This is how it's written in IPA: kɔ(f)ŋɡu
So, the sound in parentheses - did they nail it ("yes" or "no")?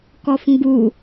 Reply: yes